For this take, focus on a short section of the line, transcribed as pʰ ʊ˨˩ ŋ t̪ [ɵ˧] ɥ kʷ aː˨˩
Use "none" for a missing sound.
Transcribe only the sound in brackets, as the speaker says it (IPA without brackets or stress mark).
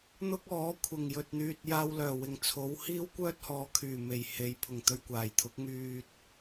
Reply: ɵ˧